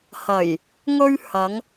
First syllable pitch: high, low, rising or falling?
low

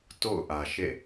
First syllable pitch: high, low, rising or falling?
falling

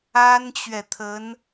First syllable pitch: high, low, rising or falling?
high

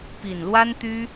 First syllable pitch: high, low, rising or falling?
low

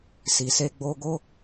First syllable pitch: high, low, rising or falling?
low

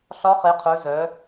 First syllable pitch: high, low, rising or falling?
rising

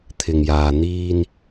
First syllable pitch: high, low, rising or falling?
low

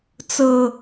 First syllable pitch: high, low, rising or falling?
low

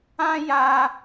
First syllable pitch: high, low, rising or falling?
high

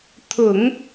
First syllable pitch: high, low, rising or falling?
low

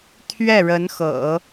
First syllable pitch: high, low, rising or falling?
falling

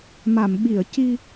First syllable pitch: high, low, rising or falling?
low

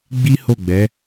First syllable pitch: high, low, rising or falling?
high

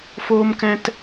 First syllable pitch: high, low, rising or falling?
high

